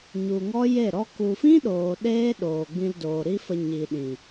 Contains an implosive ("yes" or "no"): yes